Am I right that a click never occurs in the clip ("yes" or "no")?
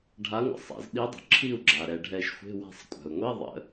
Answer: no